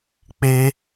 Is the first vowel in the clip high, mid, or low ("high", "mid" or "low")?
mid